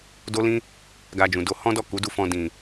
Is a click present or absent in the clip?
absent